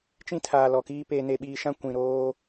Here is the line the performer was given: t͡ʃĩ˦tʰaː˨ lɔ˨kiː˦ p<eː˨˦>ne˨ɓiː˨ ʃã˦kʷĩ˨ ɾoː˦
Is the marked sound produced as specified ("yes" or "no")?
no